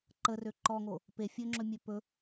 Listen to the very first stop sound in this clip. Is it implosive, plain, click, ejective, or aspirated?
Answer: click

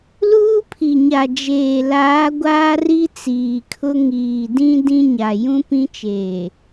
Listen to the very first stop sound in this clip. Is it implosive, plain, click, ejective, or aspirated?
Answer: aspirated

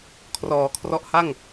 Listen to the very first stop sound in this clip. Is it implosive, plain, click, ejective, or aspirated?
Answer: aspirated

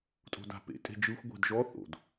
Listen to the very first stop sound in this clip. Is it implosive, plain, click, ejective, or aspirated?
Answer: ejective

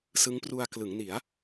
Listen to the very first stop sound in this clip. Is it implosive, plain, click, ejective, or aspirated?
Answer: plain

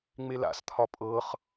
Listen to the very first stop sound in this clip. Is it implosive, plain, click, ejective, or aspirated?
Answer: aspirated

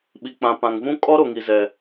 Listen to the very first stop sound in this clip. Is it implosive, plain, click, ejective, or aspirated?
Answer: implosive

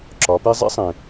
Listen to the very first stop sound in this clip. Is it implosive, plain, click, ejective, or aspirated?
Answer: click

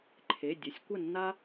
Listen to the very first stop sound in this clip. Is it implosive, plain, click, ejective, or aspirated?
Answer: click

